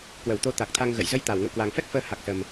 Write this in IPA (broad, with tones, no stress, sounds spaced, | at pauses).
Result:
k w ə˧˩ w t̪ o˧ t̪ a˨˩ k̚ t̪ʰ a˧ ŋ ɣ ə̰˧˨ j z ə˧ j t̪ a˧˩ w ŋ ə̰˧˨ w k w a˨˩ ŋ f ɛ˦˥ k̚ f əː˨˦ h a˨˩ k̚ s ə˨˩ m